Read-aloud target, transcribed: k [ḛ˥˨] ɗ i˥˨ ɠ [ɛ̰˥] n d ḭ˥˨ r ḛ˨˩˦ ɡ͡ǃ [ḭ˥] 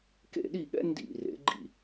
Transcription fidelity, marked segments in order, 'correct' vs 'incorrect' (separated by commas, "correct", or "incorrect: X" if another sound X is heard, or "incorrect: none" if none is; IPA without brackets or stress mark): correct, correct, incorrect: ḭ˥˨